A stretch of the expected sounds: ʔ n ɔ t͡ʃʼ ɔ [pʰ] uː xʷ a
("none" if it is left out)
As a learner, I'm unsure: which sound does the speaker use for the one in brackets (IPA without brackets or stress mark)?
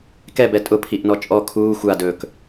kʰ